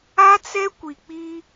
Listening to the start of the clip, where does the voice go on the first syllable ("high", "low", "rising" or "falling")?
high